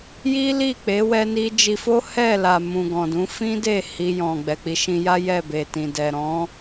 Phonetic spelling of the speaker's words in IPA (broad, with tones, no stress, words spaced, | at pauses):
ji˦li˦˨k͡pe˨˦ wɛ˧ni˧d͡ʒi˧fo˦ hɛ˦˨la˨ mũ˨ɡɔ̃˨dũ˨˦ fĩ˦de˦˨ hi˧jɔ̃˨ ɡ͡bɛ˨k͡pi˨˦ʃĩ˧ja˦ jɛ˦˨be˨tĩ˨ dɛ˨ ɾɔ̃˨˦